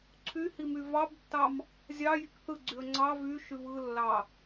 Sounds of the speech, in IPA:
ǀʰ y h i m y v ɑ b tː ɑ m | zʲ ɑ j i k θ ɯ ɡ͡ǀ y ə̯ ŋ͡ǀ ɑ v y ʃ y v ɯ lː ɑ

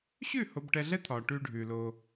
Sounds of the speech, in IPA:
ɕ ʉ˦˨ h o˨ b ʈ ɛ˨ ɮ ɛ˦ t̪ʰ ɒ˨ ʈ ʉ˦ ɖʱ ʉ˨ l o˦

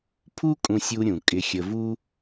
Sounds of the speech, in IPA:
pʰ u˥ kʼ ũ˧ sʲ u˧ ɾʲ ũ˩ kʼ ɪ˧ xʲ ə˧ v u˥

